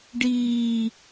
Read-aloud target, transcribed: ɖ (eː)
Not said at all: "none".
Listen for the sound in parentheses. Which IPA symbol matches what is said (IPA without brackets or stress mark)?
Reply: iː